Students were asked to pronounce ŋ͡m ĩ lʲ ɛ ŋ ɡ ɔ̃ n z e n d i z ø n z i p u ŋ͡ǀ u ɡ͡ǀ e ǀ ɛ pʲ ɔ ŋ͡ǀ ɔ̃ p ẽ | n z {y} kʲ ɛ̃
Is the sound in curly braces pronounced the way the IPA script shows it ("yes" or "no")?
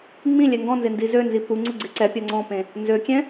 no